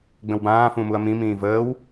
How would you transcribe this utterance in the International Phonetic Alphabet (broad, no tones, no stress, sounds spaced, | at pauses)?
ɡ͡b ə̃ w b ãː f ũ m u ɐ̯ m ĩ m ĩː v əː w